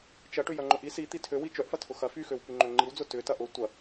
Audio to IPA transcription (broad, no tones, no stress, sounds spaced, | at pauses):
t͡ʃ ɐ ʈ ʏ j ɐ ŋ͡ǃ ʊ ʔ i s i t̪ i tʰ ø w i t͡ʃ œ ʔ f ɐ tʰ ʊ x ɐ f y x ø w p y ŋ͡ǃ ø ŋ͡ǃ i w d͡z ʊ t ʏ t ɐ ʔ ʊ tʷ ɐ